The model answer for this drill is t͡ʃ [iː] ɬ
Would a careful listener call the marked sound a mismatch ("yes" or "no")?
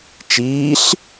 no